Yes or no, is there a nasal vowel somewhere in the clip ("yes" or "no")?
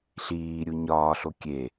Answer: no